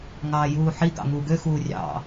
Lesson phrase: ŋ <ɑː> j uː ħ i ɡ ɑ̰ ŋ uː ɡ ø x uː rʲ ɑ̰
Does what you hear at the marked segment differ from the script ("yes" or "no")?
no